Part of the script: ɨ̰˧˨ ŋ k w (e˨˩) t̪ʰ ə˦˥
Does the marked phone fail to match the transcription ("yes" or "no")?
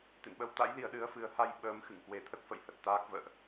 no